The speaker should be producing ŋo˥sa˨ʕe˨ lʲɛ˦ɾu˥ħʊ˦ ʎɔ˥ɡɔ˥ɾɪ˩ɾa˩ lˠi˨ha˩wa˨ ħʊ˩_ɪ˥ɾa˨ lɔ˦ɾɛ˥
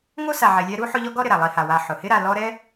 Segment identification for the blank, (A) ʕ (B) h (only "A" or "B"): B